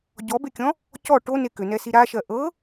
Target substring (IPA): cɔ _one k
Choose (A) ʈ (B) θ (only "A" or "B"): A